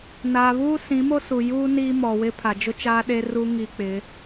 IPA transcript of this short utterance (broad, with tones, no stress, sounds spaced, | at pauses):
n aː˨ β uː˦ s ĩ˨˦ m o˦ s u˨ j uː˦ n iː˦ m ɔ˨ w ɪ˦ pʰ a˨ d͡ʒ ʊ˦ t͡ʃ aː˦ ɗ e˦ r u˦ ŋ i˦ k͡p ɪ˨˦